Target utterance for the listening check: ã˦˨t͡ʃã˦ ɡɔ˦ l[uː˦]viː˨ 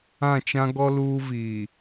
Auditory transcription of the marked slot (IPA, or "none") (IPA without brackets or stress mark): uː˦